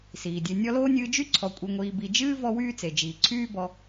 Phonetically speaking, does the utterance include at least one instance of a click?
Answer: yes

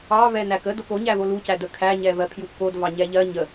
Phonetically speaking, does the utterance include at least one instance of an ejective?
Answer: no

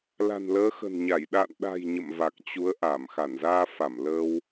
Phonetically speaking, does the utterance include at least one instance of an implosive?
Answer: yes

